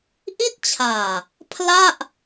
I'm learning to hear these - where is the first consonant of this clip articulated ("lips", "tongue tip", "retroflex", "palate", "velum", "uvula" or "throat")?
throat